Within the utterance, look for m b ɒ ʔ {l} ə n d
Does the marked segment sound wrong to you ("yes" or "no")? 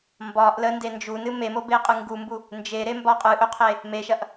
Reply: no